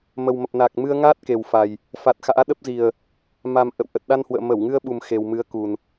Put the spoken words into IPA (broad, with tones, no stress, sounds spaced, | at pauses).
m ə˨˩ w m ə˨˩ p̚ n aː˨˩ k̚ m ɨ˧ ə̯ ŋ aː˦˥ t̚ k e˨˩ w f a˨˩ j | f a˨˩ t̚ x a̰ː˧˥ ɗ ə˦˥ p̚ z i˨˩ ə̯ | m a˨˩ m ʔ ə̰˧˨ w ʔ ə˨˩ t̚ ɗ a˧ n h w ə̰ː˧˨ m ə˧˩ w ŋ ɨ˧ ə̯ ɓ u˨˩ m x e˨˩ w m ɨ˨˦ ə̯ k u˨˩ n